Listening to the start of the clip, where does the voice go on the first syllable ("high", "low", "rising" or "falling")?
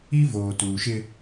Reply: high